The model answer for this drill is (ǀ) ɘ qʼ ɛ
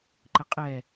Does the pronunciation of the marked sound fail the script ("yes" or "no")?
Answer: yes